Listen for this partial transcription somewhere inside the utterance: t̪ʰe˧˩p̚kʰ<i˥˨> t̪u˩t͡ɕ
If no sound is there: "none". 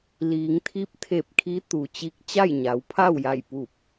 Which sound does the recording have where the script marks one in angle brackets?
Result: i˧˥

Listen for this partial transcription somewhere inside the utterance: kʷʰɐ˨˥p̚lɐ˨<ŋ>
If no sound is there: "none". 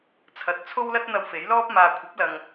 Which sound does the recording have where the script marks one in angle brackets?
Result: ŋ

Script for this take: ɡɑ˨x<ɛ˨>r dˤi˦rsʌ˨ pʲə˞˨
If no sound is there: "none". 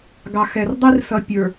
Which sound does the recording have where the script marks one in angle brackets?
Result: ɛ˨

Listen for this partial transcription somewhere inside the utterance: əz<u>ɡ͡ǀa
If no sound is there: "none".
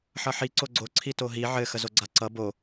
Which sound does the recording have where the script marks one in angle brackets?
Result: o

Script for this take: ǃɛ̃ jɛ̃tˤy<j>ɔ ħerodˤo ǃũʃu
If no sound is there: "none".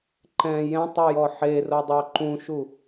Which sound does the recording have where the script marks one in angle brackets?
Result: j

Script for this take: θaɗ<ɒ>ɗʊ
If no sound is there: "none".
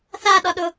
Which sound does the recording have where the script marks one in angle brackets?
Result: ɒ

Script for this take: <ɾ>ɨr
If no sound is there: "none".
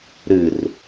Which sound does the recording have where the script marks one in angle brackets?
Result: ɾ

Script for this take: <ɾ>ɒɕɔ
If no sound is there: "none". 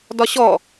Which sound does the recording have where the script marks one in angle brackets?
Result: d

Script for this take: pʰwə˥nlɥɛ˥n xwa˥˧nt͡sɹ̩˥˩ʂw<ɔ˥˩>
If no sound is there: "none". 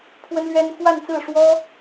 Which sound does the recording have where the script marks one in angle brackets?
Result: ɔ˥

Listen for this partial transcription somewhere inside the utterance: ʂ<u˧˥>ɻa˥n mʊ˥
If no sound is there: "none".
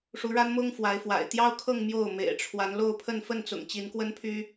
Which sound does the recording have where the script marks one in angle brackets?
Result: u˧˥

